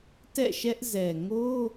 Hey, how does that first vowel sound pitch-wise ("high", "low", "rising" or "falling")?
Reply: falling